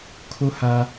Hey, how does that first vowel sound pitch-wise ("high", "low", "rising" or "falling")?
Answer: high